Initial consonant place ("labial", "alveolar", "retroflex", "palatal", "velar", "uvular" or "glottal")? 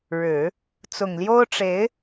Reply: retroflex